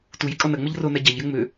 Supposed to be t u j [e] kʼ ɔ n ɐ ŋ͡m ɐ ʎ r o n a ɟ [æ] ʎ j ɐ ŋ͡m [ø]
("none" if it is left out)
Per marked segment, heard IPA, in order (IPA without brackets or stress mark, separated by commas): i, a, ø